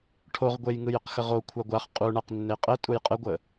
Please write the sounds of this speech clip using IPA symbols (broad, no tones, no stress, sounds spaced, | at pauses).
ʈʰ o ʁ ɡʷ e j ŋ ɯ j ə q x ə ʁ o kʷʰ a ɡʷ a χ qʼ u ɳ a q nː e qʼ ə tʼ u j qʼ ə ɡʷ ə